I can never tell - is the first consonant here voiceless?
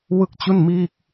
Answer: no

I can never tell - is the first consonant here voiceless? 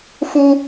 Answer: yes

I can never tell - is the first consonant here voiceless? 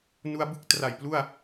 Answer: no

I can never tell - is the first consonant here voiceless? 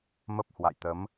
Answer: no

